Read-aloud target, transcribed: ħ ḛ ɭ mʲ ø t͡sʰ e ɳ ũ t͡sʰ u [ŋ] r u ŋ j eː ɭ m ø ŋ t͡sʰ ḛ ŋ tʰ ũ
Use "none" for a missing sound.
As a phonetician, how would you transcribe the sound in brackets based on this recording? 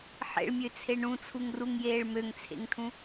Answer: ŋ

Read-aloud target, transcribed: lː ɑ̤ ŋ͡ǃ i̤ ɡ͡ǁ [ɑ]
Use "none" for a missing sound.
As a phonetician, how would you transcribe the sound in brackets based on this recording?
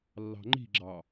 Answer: ɑ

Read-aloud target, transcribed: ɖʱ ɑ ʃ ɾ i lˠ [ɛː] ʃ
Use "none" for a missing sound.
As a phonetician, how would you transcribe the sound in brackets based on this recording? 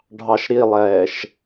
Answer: ɛː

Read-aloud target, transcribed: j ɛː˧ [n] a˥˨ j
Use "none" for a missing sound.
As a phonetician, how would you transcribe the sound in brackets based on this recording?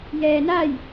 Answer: n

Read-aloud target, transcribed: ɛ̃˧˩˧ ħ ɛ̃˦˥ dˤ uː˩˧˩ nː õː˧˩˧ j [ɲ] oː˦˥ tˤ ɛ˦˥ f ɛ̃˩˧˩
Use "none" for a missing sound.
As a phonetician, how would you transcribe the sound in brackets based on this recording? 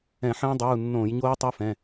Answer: ɲ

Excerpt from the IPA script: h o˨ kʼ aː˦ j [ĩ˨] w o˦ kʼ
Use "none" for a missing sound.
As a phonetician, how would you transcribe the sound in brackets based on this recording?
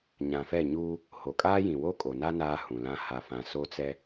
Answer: ĩ˨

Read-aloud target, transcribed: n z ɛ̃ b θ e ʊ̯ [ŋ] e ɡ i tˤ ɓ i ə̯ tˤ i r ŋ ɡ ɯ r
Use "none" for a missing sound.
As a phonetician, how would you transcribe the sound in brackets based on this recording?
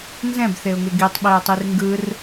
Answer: ŋ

